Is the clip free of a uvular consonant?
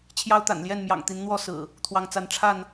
yes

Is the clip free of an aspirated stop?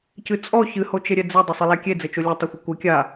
yes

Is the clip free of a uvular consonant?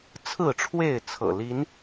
yes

